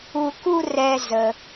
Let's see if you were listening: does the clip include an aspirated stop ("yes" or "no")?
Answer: no